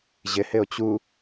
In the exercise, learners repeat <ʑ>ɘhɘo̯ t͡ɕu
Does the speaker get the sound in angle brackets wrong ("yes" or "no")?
no